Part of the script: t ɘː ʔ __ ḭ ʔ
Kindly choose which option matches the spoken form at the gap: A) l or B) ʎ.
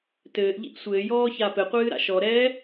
B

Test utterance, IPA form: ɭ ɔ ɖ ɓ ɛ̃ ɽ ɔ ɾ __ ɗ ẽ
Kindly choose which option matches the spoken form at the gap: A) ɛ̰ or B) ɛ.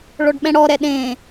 B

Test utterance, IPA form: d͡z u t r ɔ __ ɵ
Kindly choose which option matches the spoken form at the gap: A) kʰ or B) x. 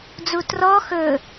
B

